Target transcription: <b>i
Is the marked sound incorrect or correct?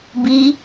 correct